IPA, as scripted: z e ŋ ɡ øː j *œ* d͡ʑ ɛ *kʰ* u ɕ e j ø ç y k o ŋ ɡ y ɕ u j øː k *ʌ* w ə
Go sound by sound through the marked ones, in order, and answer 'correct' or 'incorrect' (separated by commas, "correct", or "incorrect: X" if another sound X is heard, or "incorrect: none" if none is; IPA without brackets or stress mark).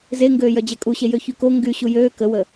correct, incorrect: kʼ, incorrect: ə